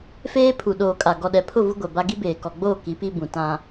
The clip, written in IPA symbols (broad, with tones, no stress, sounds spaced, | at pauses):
f eː˦ pʰ u˨ ɗ oː˨ kʼ a˨ ɡ ɔ˨ ɗ ɛ˨ pʰ ʊ˦˨ v u˦ ɡʷ ɛ˨ b a˦ ɡ i˦ b eː˨ k ɔ˨ ɡ͡b oː˦˨ k i˨˦ p i˦ b ũ˨ t ã˦